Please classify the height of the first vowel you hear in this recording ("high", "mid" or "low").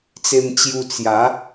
mid